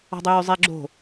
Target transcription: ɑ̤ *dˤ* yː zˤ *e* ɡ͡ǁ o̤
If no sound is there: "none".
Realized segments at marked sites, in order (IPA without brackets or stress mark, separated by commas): dˤ, e